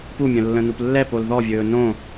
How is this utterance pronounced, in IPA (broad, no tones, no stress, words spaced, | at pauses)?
pumʲə̃ lːə̃nuplːɛpol ðɔvʲɵː nõ